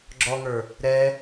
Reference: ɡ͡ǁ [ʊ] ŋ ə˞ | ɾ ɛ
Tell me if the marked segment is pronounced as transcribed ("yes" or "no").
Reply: no